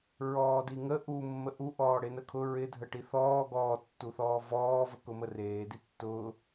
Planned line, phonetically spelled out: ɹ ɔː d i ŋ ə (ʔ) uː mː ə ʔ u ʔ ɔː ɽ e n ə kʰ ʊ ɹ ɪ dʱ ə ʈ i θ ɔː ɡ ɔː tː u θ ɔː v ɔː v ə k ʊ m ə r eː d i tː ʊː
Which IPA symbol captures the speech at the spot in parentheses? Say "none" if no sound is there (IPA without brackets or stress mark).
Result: ʔ